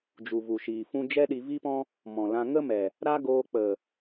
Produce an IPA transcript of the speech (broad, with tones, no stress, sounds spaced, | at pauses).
d͡ʒ u˨ v u˨ ʃ iː˨ f ũ˦ d͡ʒ ɛ˦ ɗ i˧ v i˦ p ɔ̃˦ | m ɔ̃˨ l ã˧ ŋ ə˦ m ɛ˨ | ɾ a˦ ɡ oː˧ k͡p ə˨